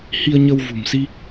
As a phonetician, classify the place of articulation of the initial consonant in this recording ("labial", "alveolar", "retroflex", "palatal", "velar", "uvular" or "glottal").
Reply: glottal